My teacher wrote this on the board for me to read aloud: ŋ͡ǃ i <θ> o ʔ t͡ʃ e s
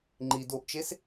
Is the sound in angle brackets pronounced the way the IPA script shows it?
no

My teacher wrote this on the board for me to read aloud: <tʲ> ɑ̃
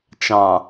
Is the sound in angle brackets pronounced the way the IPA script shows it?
no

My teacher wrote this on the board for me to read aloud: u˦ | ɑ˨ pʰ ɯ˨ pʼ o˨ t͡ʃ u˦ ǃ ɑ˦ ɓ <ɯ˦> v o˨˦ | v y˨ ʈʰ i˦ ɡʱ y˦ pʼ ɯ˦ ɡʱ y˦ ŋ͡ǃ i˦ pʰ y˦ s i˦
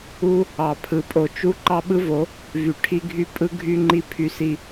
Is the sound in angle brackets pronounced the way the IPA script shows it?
yes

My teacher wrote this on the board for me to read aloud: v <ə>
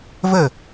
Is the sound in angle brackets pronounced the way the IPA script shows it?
yes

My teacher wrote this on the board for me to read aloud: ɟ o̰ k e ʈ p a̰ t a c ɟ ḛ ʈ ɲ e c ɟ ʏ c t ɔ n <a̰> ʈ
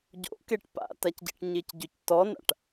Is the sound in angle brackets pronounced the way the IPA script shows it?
yes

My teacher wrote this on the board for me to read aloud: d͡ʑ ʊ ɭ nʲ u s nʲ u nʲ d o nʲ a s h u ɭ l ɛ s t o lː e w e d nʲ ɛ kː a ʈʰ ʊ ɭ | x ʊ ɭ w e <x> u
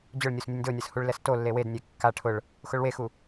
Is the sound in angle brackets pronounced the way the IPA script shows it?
yes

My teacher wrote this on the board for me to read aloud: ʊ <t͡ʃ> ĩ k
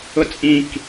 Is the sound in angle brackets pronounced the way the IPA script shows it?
no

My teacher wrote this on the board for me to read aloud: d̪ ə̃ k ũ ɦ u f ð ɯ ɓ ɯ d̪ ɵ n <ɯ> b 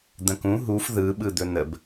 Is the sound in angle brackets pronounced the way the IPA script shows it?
no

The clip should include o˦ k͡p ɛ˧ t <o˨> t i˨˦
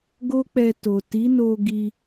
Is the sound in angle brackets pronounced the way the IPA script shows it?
yes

